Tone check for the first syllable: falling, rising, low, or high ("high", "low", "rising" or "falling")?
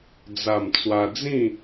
low